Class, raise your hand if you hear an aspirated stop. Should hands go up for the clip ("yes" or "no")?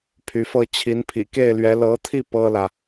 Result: yes